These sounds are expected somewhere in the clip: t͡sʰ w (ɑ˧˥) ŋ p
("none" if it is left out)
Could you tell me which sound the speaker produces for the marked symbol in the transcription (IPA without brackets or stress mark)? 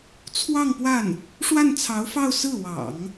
ɑ˥˧